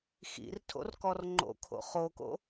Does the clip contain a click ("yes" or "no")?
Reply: yes